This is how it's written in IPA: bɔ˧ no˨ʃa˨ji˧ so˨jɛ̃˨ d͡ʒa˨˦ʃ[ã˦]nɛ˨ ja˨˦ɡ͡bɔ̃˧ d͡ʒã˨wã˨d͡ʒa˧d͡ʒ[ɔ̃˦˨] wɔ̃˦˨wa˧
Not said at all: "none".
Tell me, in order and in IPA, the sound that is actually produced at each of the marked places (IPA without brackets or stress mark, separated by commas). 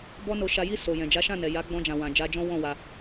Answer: ã˦˨, ɔ̃˦